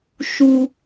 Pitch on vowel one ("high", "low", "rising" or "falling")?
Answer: high